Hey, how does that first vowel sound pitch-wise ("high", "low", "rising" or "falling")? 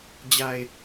low